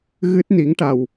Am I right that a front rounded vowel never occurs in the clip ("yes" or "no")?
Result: yes